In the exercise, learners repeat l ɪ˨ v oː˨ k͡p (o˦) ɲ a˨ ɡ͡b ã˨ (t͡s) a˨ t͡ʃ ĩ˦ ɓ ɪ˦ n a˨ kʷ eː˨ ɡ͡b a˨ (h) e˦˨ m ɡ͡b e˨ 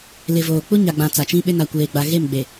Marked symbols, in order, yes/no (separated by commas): no, yes, no